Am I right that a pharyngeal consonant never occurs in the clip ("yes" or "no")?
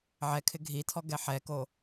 no